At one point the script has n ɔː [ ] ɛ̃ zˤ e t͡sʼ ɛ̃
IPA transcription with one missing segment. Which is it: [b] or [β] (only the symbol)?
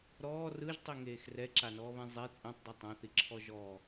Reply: β